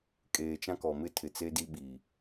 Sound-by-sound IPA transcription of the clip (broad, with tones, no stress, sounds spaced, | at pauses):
kʼ eː˨ t͡ʃ ã˦ k ɔ˨ m ɪ˦ tʰ ɪ˨ t͡s e˦ d i˦ ɓ i˨